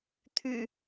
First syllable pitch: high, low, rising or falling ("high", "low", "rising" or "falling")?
low